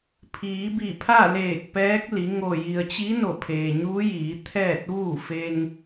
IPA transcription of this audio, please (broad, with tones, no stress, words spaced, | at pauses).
pʰiː˩˧bi˧˩pʰa˥˨leː˧˩k̚ pɛː˧˥k̚li˩˧ ŋo˧˩ ji˩ə̯t͡ɕi˧˥ no˧˩pʰeː˩ɲuː˧˥jiː˩˧ t̪ʰɛː˥˨t̚ʋuː˥˨ fe˧ŋ